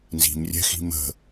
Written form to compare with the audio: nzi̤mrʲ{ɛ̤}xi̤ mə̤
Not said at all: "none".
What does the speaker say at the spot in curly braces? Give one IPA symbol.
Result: ɛ̤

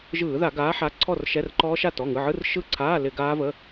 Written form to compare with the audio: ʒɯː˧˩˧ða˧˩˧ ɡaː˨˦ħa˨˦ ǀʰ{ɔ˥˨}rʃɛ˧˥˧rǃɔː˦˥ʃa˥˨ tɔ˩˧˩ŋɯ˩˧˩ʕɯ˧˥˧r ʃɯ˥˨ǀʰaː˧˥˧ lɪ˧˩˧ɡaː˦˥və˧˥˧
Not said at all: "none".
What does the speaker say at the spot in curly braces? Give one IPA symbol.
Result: ɔ˥˨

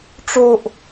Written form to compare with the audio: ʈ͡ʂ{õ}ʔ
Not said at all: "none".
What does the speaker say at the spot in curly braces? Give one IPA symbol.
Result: o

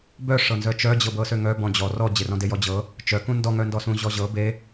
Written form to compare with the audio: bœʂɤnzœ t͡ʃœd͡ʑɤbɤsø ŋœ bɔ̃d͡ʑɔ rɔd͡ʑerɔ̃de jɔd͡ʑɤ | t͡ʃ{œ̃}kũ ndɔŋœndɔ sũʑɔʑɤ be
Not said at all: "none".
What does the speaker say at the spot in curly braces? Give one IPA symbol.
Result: œ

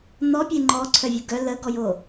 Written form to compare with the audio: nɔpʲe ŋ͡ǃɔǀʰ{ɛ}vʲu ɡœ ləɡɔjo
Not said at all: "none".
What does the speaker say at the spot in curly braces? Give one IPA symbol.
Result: œ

